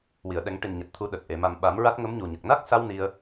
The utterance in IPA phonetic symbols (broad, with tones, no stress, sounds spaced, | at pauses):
w i˨˩˨ ə̯ ɗ ɛ˨˩˦ ŋ ʈ i˨˩ n ɲ a˨˩ t̚ t̪ʰ u˨˩˦ ɗ ə˨˩ k̚ ʔ e˨˩˨ m a˨˩ m ɓ a˨˩˦ m ɹ a˦˥ t̚ ŋ ə˧˥ m ɲ u˨˩ ɲ ə˨˩ k̚ n a˦˥ k̚ s a˧ w n i˧ ə̯